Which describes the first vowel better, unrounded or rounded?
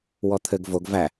rounded